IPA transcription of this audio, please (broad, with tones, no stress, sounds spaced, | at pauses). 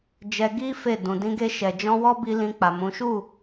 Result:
d͡ʒ ɛ˧ ɡ i˦ f e˦˨ d ũ˨ d ĩ˧ ɡ e˧ ʃ ɛ˨ d͡ʒ ɔ̃˧ w ɔ˦ b i˧ l ĩ˧ k͡p a˨ m ũ˨˦ ʃ u˦˨